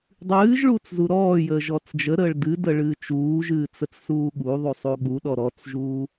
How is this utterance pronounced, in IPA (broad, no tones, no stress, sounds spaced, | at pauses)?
dˤ ɨː ʒ ɭ uː t͡s z u ɾ ɔː j əː ʒ ɔ t͡s d͡ʒ ə ɾ əː ɭ d ɨ d ə ɭ ɨ t͡ʃ uː ʒ ɨː t͡s ə t͡s s uː ɠ u ðˤ u sˤ u ɠ u ɗ ɔ ɾ ɔ t͡s ʒ uː